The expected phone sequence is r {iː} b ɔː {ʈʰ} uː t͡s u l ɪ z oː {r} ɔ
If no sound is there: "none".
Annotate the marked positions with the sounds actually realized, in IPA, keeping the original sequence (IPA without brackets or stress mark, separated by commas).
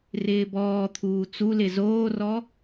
ɪː, t̪ʰ, r